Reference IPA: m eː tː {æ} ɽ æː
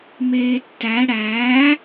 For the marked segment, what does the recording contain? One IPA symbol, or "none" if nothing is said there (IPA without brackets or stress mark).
æ